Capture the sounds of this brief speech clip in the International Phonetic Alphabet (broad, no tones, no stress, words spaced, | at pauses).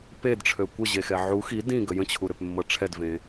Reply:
pedʈ͡ʂʰø kʷəʑexɛ ʕu xi dĩɡə jə̃t͡ɕʰuɾøpmːɤ ʈ͡ʂʰɛdvẽ